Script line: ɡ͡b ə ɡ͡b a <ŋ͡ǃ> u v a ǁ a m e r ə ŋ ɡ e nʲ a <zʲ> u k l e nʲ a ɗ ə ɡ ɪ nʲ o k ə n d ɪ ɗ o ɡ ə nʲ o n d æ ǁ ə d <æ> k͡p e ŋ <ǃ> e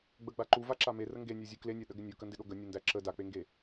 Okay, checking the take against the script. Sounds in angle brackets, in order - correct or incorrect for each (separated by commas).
incorrect, correct, incorrect, incorrect